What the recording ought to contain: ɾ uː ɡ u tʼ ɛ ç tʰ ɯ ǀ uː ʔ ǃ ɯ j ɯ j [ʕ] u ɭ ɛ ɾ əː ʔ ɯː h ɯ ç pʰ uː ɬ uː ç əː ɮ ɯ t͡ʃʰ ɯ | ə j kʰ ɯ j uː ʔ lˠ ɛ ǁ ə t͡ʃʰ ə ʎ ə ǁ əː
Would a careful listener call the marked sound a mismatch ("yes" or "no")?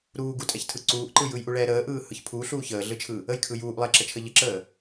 yes